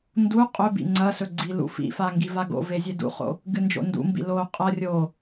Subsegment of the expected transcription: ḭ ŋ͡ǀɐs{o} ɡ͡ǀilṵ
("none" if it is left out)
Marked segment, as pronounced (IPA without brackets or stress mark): ɵ